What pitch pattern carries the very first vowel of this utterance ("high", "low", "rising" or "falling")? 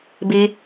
high